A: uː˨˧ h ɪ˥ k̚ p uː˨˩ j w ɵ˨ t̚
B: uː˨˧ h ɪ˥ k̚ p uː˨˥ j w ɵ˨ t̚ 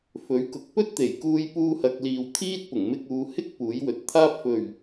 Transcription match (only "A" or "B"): B